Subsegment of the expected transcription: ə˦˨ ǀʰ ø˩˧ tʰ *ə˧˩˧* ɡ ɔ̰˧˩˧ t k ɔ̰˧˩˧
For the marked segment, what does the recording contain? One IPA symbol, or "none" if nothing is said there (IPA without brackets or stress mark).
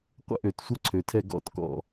ɛ˧˩˧